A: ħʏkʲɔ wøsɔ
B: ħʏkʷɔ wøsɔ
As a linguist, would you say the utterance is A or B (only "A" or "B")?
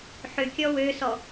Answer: A